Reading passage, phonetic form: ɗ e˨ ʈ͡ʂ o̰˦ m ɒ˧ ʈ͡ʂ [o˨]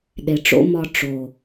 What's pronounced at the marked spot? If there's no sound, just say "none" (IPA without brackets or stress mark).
o˨